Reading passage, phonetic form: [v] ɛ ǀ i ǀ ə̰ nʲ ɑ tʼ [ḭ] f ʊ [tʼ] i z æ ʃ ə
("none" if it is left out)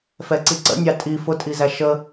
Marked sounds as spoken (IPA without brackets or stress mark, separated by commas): f, i, tʼ